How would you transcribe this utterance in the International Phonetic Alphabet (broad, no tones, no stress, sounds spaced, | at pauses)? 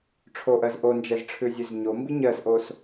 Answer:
ʈ͡ʂʰ o ʔ ɜ z ʔ o n d͡ʒ ɛ z ʈ͡ʂʰ ʉ zʲ ʉ z ɲ o m b i ɲ ɜ s ʔ o s